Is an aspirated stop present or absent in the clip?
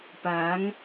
absent